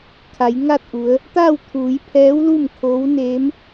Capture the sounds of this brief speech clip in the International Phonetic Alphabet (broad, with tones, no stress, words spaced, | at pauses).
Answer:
kʰa˩˧jŋa˥˨t̚ʔu˩˧ə̯ | t̪a˥˨wt̪ʰuː˩˧jpʰɛː˧˥wlu˥˨m kʰo˧˥wneː˧˥m